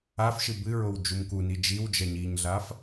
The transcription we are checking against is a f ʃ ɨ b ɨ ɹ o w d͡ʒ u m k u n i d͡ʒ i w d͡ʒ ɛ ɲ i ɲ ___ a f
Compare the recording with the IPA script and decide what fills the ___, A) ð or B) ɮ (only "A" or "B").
B